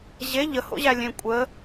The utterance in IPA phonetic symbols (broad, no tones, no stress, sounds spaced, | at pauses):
ʑ e ʎ ə h o̰ ʑ æ lʲ ẽ kʷʼ ə